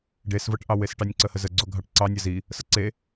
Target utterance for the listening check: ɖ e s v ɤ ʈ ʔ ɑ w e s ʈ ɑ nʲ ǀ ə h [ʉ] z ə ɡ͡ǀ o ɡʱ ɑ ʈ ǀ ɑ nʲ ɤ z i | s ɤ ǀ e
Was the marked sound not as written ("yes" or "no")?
yes